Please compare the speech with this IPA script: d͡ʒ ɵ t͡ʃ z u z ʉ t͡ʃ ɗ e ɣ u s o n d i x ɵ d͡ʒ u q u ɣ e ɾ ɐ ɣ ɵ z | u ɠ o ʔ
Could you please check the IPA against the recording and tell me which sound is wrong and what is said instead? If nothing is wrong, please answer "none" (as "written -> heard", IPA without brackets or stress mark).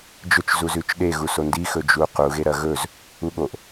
none